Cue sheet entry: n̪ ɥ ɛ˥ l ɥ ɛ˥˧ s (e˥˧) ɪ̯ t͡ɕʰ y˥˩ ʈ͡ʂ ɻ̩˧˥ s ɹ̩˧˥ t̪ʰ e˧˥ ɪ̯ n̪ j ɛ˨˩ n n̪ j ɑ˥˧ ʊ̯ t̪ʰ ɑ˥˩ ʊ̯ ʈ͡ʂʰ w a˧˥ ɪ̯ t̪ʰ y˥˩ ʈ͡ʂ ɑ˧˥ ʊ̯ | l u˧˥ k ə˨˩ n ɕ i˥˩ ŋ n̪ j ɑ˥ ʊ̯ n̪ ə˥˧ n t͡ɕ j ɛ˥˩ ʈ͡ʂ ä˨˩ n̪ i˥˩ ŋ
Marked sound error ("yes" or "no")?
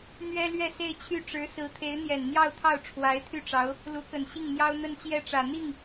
no